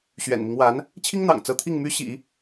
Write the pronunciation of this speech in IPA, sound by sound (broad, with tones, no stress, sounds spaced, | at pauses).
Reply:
ɕ ɥ ɛ̰˨˩ n m i˦ ŋ w a˧˥ n | t͡ɕʰ i˥ ŋ n̪ ɑ̰˨˩ ŋ t͡s ɤ˧˥ t̪ʰ i˥˩ ŋ m y˥ ɕ ḭ˨˩˦